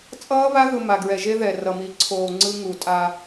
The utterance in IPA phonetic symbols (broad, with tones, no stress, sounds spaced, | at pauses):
t͡sʼ ʌː˦ β a˦ ɣ ɯ˨ m a˨ ɡ ɹ ɛ˨ ʒ e˦ ð ɛ˨ r ʌ˨ m i˨˦ ǀʰ oː˨ ŋ͡ǀ ɯ˦ ŋ u˨ tʼ a˦